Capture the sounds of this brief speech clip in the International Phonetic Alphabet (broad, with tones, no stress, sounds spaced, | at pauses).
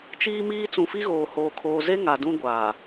t͡ʃ iː˦ m iː˦ t͡s ũ˨ f i˦ ɣ oː˨ h oː˨ kʰ oː˨ z e˦ ŋ a˨ d ũ˦ ɡʷ aː˨